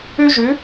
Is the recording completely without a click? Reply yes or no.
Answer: yes